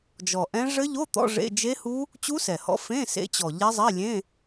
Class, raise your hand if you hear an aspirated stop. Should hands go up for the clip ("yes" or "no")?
no